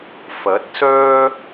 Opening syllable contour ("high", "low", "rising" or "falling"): rising